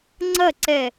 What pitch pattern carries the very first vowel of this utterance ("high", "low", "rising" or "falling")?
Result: falling